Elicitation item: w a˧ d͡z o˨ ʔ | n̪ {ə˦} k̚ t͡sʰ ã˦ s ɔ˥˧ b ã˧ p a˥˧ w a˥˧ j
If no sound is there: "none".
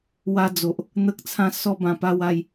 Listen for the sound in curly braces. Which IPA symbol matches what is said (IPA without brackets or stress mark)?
ə˦